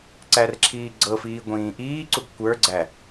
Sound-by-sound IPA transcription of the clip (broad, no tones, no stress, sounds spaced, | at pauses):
ǀ æ r ǁʰ iː ɡ͡ǀ ɤ f iː ɡʷ ĩː ʔ iː ǀ u ɡ kʷ ə˞ ɡ͡ǀ æ